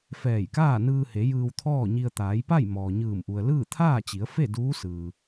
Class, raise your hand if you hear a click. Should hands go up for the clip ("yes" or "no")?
no